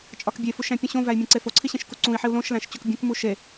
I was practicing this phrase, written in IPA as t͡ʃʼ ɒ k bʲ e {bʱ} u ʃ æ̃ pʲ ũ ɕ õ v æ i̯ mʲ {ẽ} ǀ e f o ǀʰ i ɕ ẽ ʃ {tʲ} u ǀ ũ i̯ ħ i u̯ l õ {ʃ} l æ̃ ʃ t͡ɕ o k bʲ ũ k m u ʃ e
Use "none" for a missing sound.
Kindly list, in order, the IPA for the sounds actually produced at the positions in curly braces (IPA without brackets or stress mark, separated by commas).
f, ẽ, k, ʃ